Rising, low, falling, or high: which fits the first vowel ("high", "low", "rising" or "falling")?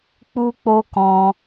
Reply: high